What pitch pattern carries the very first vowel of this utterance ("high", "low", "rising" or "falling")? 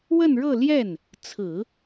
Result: falling